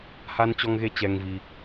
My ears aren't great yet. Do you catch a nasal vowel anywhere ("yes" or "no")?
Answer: no